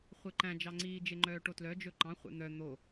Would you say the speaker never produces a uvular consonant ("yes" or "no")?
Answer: no